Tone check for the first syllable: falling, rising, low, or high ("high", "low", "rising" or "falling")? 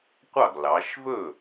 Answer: falling